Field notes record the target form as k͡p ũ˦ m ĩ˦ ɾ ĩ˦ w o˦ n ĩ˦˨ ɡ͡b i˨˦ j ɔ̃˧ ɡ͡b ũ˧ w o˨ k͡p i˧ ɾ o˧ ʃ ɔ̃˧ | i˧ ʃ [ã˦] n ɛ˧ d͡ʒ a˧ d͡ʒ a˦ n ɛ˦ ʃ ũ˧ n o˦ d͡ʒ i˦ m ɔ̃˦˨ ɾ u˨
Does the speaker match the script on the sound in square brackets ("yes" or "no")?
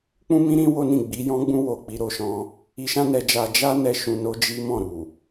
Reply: yes